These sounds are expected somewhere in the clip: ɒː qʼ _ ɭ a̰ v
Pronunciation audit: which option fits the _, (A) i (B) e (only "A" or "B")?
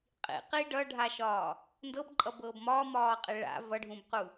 B